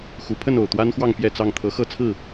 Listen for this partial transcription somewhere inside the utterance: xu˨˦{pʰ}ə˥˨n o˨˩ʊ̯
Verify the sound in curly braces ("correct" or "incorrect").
correct